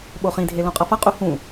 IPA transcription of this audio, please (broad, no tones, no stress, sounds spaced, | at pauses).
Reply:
ɓ o χ ĩ dʱ e l õ qʼ ʌ f ʌ qʼ u h ũ